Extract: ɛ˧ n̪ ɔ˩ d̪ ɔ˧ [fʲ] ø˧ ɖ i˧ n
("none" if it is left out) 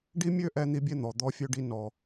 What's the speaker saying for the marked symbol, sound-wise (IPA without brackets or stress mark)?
fʲ